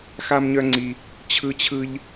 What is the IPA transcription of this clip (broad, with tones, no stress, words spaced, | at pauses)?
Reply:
xa˦mɲœ˦ ŋ͡ǀi˧ | t͡ɕʰɯ˦t͡ɕʰɯ˦ʎ